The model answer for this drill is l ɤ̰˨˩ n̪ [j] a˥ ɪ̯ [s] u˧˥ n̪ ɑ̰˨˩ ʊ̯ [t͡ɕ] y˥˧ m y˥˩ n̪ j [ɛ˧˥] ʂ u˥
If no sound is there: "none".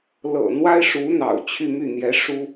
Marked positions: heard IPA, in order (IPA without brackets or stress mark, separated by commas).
w, ʂ, t͡ɕʰ, ɛ˧˥